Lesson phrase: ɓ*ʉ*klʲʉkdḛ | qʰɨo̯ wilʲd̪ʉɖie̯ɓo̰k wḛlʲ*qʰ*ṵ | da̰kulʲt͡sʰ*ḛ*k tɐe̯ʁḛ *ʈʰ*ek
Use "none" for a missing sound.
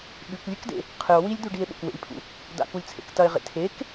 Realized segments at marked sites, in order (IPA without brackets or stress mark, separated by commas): ʉ, pʰ, ḛ, tʰ